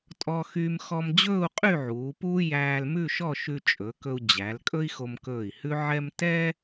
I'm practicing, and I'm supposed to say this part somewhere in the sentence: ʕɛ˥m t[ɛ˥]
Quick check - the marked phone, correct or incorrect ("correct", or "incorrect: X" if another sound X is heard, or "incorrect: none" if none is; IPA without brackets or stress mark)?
correct